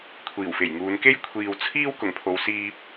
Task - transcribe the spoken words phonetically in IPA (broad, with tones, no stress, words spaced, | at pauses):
kʷʰiː˨˩wfe˨˩jŋuː˨˧n ke˥jkʷʰiː˨w t͡sʰiː˥w kʊ˨˩ŋpʰo˨˧wsiː˧p̚